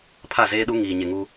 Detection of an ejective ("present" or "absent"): absent